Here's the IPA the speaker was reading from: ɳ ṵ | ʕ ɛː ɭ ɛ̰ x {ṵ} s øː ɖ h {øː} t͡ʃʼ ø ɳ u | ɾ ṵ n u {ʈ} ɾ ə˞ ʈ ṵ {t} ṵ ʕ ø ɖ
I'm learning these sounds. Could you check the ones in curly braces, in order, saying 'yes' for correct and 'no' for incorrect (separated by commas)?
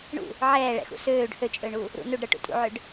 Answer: yes, no, no, no